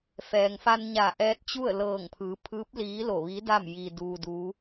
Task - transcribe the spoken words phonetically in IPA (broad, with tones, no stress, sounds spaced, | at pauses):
f ɛː˩ ŋ f a˧ n ɲ a˧˩ ʔ ɛː˧ t̚ t͡ɕ u˥˨ ə̯ l ɤː˧˩ ŋ pʰ ɯː˩˧ pʰ ɯː˧˥ p̚ l iː˧˥ l o˧˩ ʋ i˧˥ d a˥˨ m j i˧ d uː˧ d u˧˥